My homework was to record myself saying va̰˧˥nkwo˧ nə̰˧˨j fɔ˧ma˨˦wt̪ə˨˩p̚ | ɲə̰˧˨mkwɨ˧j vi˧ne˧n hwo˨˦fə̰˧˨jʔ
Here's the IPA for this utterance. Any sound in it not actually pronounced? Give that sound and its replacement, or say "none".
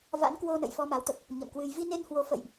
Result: none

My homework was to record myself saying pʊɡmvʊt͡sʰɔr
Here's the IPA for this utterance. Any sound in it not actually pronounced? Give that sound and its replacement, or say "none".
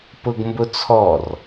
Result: v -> b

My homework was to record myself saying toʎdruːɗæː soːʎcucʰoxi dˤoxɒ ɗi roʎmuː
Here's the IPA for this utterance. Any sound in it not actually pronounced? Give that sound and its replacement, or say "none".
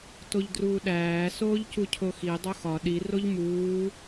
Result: none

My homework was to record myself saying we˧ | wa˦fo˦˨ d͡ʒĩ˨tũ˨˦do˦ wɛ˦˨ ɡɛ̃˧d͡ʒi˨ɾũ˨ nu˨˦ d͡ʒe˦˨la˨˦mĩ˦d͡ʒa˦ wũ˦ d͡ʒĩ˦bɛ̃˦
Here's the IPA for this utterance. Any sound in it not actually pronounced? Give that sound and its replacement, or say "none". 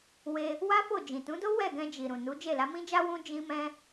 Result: b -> m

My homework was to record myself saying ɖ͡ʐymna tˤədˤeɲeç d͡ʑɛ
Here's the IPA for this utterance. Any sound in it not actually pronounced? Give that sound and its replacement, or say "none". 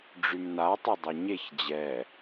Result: none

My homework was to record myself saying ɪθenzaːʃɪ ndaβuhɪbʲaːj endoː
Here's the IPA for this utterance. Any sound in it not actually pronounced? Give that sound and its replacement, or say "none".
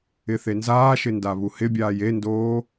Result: none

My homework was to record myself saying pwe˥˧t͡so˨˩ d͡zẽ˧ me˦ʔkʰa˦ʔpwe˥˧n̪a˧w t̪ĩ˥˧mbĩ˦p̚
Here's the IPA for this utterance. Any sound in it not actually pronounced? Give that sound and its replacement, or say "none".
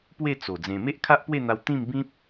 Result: none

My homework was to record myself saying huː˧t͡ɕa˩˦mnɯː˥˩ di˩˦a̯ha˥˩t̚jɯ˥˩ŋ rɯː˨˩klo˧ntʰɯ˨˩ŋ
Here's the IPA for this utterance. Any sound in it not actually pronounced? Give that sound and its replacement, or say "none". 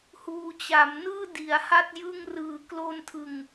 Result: none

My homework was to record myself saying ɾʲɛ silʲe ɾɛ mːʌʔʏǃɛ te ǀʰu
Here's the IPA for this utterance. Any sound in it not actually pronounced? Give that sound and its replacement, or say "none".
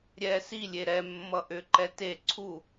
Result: none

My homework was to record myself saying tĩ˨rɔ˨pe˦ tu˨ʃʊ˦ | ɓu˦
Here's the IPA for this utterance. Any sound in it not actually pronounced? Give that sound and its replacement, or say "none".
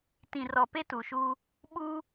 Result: ʊ˦ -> u˦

